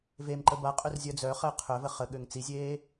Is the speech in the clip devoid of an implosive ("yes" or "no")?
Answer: no